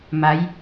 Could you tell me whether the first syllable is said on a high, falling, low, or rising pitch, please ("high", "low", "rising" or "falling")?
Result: rising